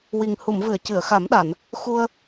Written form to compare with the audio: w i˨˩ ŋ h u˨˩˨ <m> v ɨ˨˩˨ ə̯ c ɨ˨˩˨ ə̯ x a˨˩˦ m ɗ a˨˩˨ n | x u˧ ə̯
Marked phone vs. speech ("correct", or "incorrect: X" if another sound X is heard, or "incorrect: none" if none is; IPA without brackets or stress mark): correct